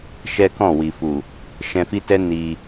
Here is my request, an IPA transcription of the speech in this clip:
ʃɛ˦kɔ̃˦˨wi˨fu˨ | ʃɛ̃˧fi˦tɛ˦ ni˧

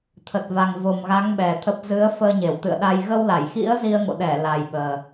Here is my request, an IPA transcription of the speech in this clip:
t̪ʰə˨˩t̚va˨˩ŋ vo˨˩mɣa˨˦ŋ ɓɛ˨˩t̪ʰə˦˥p̚ zɨ˨˦ə̯fəː˧ɲe˧˩w t̪ɨ̰˧˨ə̯ɗa˧j ɣə˧wla˧˩jxḭ˧˥ə̯ zi˧ə̯ŋo̰˧˨ɗɛ˧˩ la˨˩jɓəː˨˩

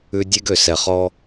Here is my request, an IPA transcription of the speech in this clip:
ʉ˦ dʲe˦ɡø˨sɛ˨ χɔ˦

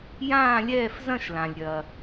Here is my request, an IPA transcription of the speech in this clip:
jãː˥˧lʲɛː˥˧fzɐ̃˥˧ʃ lã˩lʲɾʲɐ˩

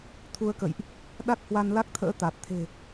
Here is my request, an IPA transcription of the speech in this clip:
t̪ʰu˧ə̯kə̰˧˨jʔ | ɗa˦˥k̚hwa˧nla˦˥k̚t̪ʰə̰ː˧˥ t̪a˨˩t̚ t̪ʰe̤˨˩

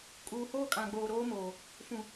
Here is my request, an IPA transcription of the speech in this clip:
kʼuː˨hoː˦kʼã˨ɡ͡boː˨ ɾoː˦moː˨ | fũ˨

